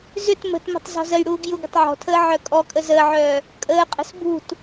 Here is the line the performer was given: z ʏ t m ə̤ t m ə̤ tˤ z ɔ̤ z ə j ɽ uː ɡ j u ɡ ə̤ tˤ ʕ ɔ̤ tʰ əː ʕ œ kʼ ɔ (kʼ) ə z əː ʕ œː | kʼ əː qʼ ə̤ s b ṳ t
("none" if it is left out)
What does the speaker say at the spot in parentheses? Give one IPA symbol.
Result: kʼ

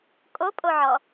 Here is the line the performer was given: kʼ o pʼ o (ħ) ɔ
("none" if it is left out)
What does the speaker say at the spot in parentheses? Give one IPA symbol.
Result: ʕ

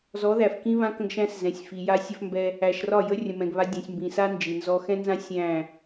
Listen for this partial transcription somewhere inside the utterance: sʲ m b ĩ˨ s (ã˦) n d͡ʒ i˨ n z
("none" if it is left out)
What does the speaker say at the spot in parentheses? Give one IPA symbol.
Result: a˦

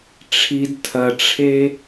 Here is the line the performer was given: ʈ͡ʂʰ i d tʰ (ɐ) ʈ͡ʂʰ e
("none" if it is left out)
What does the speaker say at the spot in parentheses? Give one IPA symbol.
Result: ɐ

